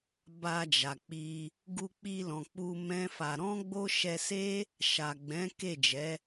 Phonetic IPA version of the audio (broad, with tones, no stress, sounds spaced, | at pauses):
b a˧ d͡ʒ a˨ k͡p i˧ | ɡ u˧ k͡p i˧ l ɔ̃˨ k͡p u˧ m ɛ̃˦ f a˧ ɾ ɔ̃˦ ɡ͡b o˦ ʃ ɛ˧ s e˦ | ʃ a˨ ɡ͡b ɛ̃˨˦ k e˦˨ d͡ʒ ɛ˨˦